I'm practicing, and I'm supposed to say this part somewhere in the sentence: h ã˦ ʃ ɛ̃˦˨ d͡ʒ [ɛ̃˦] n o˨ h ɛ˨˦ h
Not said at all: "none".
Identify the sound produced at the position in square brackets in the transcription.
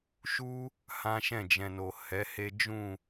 ɛ̃˨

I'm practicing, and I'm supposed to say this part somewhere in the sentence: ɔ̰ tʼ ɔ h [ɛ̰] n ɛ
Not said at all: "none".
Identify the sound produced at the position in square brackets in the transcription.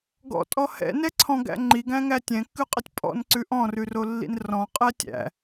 ɛ̰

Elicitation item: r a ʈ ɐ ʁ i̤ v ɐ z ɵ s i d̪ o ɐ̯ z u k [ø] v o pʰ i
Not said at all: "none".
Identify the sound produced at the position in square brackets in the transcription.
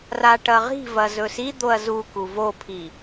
u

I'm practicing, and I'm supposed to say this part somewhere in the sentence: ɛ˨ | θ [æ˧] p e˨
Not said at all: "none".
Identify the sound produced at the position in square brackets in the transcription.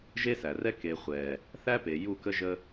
æ˦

